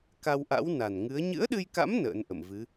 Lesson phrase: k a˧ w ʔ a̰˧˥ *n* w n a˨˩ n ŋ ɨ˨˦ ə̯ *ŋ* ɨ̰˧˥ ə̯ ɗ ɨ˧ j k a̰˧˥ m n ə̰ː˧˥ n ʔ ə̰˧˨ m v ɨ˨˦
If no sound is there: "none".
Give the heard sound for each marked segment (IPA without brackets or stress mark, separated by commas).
none, ɲ